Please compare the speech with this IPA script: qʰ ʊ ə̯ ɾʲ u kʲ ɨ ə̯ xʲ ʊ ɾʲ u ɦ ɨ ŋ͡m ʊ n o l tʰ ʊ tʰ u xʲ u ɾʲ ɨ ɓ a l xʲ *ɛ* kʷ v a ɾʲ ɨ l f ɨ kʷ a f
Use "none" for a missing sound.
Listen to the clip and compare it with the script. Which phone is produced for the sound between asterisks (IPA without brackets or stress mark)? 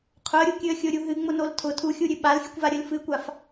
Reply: ɨ